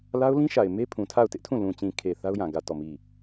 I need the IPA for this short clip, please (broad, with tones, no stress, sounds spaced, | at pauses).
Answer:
l a˦ ʊ̯ l ĩ˦ ʃ a˨ ɪ̯ m e˦ pʰ ũ˨ tʰ a˦˨ ʊ̯ t ɪ˦ ʔ tʰ ũ˦˨ l ũ˨ t͡ɕ ĩ˨ kʰ e˨ θ a˦ ʊ̯ j ã˨ ɡ ä˦˨ t ɔ˦˨ m i˦˨